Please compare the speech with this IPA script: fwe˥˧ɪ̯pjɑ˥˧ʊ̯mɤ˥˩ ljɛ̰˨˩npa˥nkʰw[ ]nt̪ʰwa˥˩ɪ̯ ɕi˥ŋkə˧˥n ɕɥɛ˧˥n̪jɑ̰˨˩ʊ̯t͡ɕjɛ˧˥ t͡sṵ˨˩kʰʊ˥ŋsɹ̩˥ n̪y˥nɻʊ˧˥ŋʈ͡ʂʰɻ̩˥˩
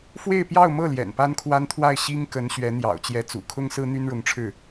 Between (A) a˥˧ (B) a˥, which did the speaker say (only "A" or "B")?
B